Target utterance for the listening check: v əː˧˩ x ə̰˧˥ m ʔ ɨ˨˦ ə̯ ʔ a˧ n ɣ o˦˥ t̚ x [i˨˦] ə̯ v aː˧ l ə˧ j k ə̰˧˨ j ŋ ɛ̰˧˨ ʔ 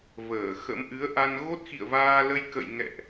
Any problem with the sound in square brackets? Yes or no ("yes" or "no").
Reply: yes